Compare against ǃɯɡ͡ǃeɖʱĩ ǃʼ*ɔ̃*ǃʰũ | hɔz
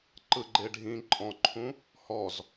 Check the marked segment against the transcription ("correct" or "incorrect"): correct